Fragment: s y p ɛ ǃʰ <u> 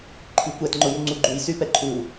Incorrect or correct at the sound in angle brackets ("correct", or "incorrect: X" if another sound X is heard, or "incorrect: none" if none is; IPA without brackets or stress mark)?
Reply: correct